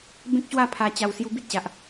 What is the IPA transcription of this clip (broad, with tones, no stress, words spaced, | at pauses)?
bẽ˦k̚ɕwa˥˧ pʰa˧t͡ɕa˧w sju˧bi˦t̚ɕa˨ʔ